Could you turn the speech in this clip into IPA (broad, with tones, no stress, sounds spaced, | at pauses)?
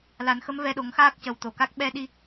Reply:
l a˨˩˦ n x ə˧˥ m v ɛ˧ ɗ o˨˩˦ ŋ x aː˦˥ k̚ c ə˨˩ w t̪ o˨˩˨ k a˦˥ k̚ ɓ ɛ˧ ɗ i˧